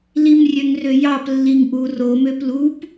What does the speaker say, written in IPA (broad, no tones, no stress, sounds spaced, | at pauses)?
l i m rʲ ø ŋ r ø j ɑ p lː i ŋ ʔ u r o m ø p l u p